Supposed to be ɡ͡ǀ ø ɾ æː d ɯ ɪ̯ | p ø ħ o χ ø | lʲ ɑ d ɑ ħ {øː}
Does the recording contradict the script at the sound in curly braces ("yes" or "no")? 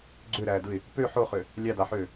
no